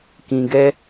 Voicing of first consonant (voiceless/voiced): voiceless